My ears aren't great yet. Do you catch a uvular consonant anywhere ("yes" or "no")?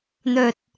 no